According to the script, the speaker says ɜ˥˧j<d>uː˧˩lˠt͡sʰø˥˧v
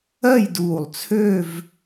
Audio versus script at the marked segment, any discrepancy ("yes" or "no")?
no